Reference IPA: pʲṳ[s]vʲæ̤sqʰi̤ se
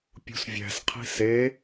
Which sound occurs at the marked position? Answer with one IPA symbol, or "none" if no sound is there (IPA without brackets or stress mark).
s